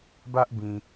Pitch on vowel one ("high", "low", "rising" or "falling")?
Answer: high